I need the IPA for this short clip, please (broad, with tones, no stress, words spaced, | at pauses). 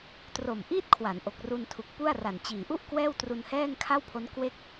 tro˨˩mʔiː˥˩t̚ kʰwa˩˦nʔo˨˩k̚ru˧ntʰu˨˩k̚ pu˥˩a̯ra˨˩nt͡ɕiː˨˩ ʔu˥˩ʔ kwɛː˥˩wtru˧nhɛː˥˩ŋ kʰa˥˩wpʰo˦˥n kwe˥˩k̚